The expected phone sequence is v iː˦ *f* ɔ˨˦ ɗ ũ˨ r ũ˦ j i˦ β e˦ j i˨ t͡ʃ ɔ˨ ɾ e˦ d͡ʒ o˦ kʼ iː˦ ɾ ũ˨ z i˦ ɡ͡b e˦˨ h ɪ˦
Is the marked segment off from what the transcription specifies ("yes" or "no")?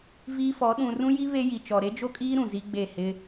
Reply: no